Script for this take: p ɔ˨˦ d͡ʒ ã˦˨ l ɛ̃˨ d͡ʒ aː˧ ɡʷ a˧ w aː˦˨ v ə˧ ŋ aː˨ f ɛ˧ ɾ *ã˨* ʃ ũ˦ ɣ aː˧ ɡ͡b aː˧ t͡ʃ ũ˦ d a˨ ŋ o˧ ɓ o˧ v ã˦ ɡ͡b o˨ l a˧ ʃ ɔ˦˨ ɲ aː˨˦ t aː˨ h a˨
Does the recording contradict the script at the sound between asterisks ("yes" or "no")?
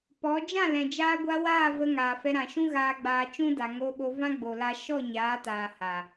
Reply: no